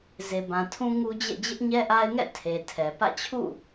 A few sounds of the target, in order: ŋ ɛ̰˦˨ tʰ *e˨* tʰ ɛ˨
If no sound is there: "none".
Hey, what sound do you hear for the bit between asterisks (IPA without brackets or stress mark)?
e˨